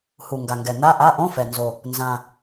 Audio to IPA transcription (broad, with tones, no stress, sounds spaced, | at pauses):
h u˨˩ ŋ ɡ a˨˩ ŋ ɡ ɛ˨˩ n̪ a˧˥˧ ʔ a˧˥˧ ʔ õ˧˥˧ f ɛ˨˩ n z o˨˩ | n z ã˨˩